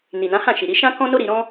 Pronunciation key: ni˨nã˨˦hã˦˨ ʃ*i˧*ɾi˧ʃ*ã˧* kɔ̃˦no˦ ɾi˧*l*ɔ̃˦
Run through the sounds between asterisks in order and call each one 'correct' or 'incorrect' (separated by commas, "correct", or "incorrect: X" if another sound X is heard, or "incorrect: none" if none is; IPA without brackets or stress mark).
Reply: incorrect: i˨, incorrect: ã˦, incorrect: ɾ